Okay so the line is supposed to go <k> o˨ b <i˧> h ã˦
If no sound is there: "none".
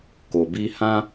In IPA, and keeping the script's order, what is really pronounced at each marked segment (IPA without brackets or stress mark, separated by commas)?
k, i˧